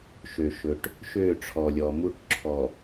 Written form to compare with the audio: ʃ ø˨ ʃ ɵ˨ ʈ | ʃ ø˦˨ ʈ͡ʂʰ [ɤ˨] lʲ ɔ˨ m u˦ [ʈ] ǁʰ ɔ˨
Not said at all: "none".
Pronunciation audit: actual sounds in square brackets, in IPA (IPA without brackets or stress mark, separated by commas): ɔ˨, ʈ